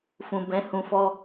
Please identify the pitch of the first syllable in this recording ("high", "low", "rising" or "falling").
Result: low